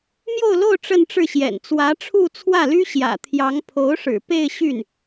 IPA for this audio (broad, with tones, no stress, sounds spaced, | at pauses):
m j o˥˧ ʊ̯ l o˥˧ ʊ̯ ʈ͡ʂ ə˥˧ n ʈ͡ʂ ɻ̩˥˩ ɕ j ɛ̰˨˩ n t͡s w ä˧˥ ʈ͡ʂʰ u˥˧ t͡sʰ w ä˥˩ l y˥ ɕ j ä̰˨˩ t̪ʰ j ɑ˧˥ ŋ pʰ o˧˥ ʊ̯ ʂ ɻ̩˨˩ p e˥˧ ɪ̯ ɕ y˥˩ n